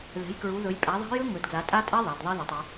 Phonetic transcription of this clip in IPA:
ðɛ̤˨˦jkɹu˨˦ðɵ˨˦j pʼæ˨˦ ðˤa̤˦˥jɵ˦˥ ŋɵ˨˦d ɡla˨˦tʼa˦˥tʼɛ˦˥ ðˤa˨˦dðˤi˦˥ða˨˦tˤy˨˦

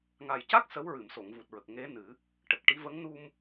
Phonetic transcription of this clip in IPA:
ŋa˨˩jca˦˥k̚ sə˧˥w ɹɨ˨˩˨mso˨˩˨ŋvu˨˩t̚ɹə˨˩k̚ ŋe˧˥ nɨ˨˩˦ | ʈə˨˩k̚ʈi˧˥ və˧˥ŋ nu˧m

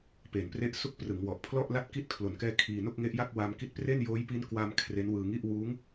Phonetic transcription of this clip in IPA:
peː˩˦npre˦˥ʔsu˦˥k̚ prɯ˩˦ŋwɔ˨˩ʔpʰlɔ˥˩ʔla˥˩t̚ ki˦˥t̚kʰlo˨˩nkɛː˧ kʰiː˧ no˥˩k̚ŋe˦˥ʔja˥˩k̚ wa˧mki˦˥t̚pre˥˩n joː˦˥jpi˦˥nkwa˧m kʰre˦˥nwɯː˧ŋi˥˩ʔ wuː˦˥ŋ

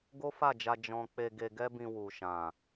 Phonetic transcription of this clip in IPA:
ɡo˦fa˦˨d͡ʒa˧ d͡ʒɔ̃˧ k͡pe˧ɡe˧ɡɛ˦bĩ˧ wu˨ʃã˨

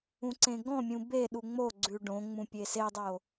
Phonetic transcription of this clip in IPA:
ũǀẽɡɔ̃mʲũ beɗu ŋ͡moɡ͡ǀʉ ɖõŋ͡mũ pʲesedˤo

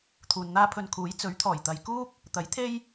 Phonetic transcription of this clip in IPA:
t̪ʰuː˨nn̪aː˥pʰɵ˧n kʰuː˨˥j t͡sɵ˨˥ɥt̪ʰɔː˨˩j t̪ɐ˨jkuː˥k̚ | t̪ɐ˨˥jt̪ʰe˥j

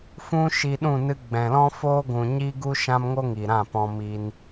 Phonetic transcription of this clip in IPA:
fũ˦ ʃi˧ɗũ˦˨ nɨ˧ɡ͡bɛ̃˨lɔ̃˦ foː˦ɡʷũ˨ɲi˦ ɡu˦ʃã˦mŋo˦ ŋi˨ɾã˦˨pɔ̃˧ mi˧n

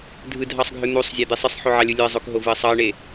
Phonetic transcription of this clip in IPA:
dʱɯdʱɑsˤɡʱø n̪usˤzʲæd̪i sˤɯsˤħoʕɑlʲɯ lʲoə̯zˤokɦovɯə̯ sˤɑə̯ɳe

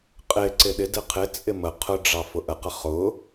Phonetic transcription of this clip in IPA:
qʼɪ ǀɪɗɪdɪ qʰɪt͡sʼɪ mə qʰʊɖ͡ʐɑ fʊʔəqə χʊ

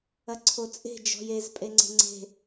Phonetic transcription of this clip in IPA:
ɐǀʰot͡sʼe̤ d͡ʒɔ̤jez pʼeŋ͡ǀe̤ŋ͡ǀe̤

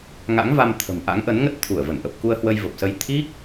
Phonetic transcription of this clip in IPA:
ŋa̰˧˥ŋva˧mt̪ʰə̤˨˩mʔa̰˧˥ŋ ʔə˨˦nŋə˦˥t̚ t̪ʰu˧˩ə̯və˧˩nʔə˨˩p̚ ku˧ə̯hwə˧jvə˨˩p̚sə˧j t̪ʰi˦˥k̚

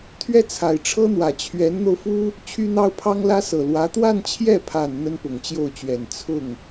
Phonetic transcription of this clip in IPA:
t̪ʰɥɛ˥t͡sʰa˨˩ɪ̯ʈ͡ʂʰɤ˥n̪wä˨˩ t͡ɕʰɥɛ˧˥nn̪o˧ʊ̯fu˥ | t͡ɕʰy˥n̪ɑ˥ʊ̯pʰɑ˥ŋ lä˥sɤ˨˩lwä˧˥ t̪wa˥˧nt͡ɕʰjɛ˥˩pʰa˨˩n n̪ə˥npʊ˨˩ŋt͡ɕjo˥˩ʊ̯t͡ɕɥɛ˨˩n t͡sʰʊ˥˩ŋ

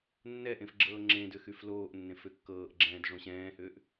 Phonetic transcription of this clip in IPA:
nːɛʔẽf ɡ͡ǁɤːŋ͡ǁẽdʏ xyfloːʔnːẽf ʏkːɤːʔɡ͡ǁɛ̃ːd ʐõɕɛ̃ːhʏːʔ

